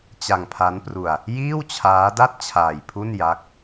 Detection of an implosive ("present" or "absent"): absent